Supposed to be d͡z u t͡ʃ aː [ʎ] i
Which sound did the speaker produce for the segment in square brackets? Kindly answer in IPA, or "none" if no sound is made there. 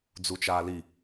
l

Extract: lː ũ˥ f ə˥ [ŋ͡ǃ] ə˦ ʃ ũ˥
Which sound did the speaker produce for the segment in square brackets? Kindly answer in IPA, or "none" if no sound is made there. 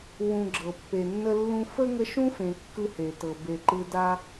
ŋ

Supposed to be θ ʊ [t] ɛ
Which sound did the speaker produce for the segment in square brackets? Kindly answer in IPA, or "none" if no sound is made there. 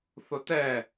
t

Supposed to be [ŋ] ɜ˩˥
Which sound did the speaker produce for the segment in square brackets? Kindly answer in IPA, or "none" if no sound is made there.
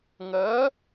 ŋ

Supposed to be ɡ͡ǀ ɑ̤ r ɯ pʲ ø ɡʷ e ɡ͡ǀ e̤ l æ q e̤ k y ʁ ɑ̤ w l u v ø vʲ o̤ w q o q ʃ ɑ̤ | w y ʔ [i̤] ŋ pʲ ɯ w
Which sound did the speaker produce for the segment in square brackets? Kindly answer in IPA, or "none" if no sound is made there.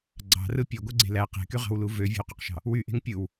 e̤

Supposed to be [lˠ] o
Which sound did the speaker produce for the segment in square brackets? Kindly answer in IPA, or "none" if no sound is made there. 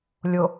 lʲ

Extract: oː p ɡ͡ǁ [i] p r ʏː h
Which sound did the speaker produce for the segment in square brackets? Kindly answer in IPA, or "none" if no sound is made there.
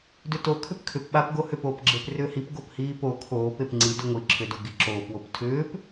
e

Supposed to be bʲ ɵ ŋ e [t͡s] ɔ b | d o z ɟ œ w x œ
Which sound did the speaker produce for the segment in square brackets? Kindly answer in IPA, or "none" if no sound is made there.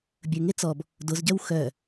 t͡s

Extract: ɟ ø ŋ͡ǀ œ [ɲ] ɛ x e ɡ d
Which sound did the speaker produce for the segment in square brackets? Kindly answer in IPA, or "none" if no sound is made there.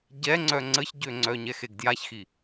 ɲ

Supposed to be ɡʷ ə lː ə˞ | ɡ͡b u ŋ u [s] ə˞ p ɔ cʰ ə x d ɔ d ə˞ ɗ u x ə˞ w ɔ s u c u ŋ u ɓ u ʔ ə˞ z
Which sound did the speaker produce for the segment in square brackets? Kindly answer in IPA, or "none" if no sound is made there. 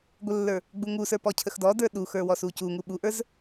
s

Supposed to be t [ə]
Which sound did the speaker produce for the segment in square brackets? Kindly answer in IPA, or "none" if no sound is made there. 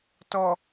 ɔ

